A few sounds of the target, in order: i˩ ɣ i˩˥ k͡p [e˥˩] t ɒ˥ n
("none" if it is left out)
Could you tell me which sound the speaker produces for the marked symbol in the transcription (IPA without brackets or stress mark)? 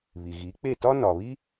e˥˩